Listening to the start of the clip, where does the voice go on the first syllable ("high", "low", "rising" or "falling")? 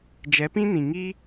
rising